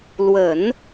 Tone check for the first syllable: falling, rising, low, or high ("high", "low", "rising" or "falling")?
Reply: low